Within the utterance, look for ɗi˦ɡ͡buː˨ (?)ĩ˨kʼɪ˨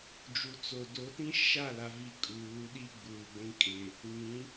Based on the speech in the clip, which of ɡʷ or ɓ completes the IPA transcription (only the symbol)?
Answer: ɡʷ